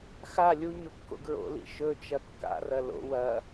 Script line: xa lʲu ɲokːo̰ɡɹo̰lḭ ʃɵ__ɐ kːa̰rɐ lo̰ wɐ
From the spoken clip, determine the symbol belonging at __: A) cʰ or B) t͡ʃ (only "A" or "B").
B